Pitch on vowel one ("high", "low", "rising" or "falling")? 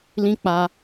high